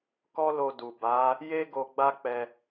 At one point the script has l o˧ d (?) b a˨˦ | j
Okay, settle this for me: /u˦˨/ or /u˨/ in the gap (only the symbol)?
u˨